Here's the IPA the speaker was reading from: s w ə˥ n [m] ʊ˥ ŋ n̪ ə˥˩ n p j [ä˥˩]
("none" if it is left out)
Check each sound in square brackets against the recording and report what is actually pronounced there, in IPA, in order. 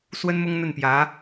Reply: m, ä˧˥

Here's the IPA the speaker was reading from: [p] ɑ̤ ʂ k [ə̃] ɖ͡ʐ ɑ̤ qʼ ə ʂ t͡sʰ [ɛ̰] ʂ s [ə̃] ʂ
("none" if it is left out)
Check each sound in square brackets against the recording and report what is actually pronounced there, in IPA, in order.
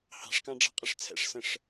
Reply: h, ɑ̃, ɛ̰, ə̃

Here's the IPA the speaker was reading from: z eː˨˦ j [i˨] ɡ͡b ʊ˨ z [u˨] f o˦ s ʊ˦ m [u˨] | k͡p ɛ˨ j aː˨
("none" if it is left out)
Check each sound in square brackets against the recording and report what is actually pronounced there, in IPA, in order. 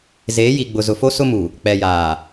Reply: i˨, ʊ˨, u˨

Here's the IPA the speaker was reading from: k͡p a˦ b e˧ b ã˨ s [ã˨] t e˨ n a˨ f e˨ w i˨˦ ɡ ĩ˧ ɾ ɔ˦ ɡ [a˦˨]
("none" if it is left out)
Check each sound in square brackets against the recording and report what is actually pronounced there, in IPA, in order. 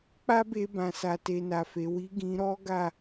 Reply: a˨, a˦˨

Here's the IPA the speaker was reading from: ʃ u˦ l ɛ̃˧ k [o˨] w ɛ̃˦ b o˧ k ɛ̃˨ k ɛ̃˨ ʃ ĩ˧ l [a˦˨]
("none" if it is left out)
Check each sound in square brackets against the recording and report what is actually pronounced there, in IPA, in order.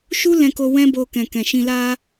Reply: o˧, a˦

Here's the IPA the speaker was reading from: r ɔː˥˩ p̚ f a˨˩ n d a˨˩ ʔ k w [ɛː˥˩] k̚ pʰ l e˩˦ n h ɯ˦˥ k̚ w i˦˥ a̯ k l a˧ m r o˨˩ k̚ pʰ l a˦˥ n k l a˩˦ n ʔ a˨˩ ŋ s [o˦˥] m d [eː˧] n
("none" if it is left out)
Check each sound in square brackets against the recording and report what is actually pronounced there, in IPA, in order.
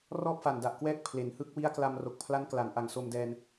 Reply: ɛː˥˩, o˧, ɛː˧

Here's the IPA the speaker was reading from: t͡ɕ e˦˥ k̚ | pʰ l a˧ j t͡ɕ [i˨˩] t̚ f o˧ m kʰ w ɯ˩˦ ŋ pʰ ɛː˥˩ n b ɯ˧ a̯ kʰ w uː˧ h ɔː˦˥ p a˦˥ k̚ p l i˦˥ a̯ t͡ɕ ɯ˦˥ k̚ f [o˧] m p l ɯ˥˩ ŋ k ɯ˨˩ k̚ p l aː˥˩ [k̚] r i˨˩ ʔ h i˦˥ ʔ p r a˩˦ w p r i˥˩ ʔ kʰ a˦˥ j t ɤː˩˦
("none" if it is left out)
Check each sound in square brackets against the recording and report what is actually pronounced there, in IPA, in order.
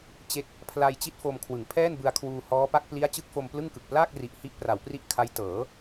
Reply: i˥˩, o˧, k̚

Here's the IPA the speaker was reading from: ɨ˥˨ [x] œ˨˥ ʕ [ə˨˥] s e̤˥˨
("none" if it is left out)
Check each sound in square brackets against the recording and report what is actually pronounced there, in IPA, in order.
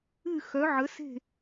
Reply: x, ə˨˥

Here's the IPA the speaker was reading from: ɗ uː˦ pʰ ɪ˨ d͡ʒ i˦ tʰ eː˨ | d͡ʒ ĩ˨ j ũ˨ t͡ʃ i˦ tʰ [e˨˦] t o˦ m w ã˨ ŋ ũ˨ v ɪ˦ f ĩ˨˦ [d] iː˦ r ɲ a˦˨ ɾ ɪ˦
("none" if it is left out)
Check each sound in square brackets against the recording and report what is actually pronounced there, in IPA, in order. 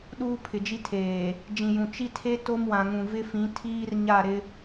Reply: e˦, tʰ

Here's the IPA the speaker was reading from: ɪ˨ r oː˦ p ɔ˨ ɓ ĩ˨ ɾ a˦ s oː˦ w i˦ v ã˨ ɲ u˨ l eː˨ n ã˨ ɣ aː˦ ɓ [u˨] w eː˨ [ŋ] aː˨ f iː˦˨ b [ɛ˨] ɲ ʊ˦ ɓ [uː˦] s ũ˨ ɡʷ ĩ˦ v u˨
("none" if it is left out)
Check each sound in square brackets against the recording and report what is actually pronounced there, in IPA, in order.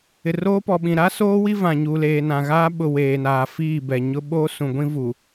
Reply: ʊ˨, n, ɛ˨, oː˦

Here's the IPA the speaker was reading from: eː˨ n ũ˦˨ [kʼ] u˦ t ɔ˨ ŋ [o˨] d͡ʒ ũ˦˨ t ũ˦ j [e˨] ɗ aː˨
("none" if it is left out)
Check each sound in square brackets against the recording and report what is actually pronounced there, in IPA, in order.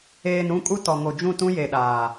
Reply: kʼ, o˨, e˨

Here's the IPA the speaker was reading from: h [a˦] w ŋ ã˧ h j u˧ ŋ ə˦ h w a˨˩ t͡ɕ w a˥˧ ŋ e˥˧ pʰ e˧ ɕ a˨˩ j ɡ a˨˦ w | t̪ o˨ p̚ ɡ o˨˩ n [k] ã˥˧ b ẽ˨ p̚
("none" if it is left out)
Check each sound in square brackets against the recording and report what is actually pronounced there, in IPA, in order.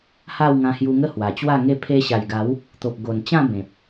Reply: a˥˧, t͡ɕ

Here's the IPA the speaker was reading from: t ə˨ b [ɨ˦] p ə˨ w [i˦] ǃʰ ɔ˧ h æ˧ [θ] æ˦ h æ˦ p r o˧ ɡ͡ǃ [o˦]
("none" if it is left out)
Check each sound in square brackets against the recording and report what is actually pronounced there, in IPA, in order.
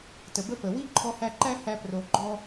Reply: ə˦, i˦, ǃ, ɔ˦

